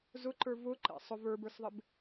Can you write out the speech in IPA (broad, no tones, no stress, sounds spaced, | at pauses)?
z ʊ ǃ ə˞ v ʊ ǃ ɛ̰ sˤ ʊ v ə˞ b ə˞ s ðˤ ɪ b